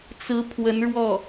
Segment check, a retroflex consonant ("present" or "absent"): present